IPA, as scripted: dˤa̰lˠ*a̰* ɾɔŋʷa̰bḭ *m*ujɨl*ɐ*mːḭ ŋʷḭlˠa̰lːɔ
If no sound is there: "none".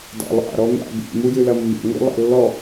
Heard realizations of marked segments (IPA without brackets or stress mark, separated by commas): a̰, m, ɐ